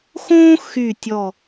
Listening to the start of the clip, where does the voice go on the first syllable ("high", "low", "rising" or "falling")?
high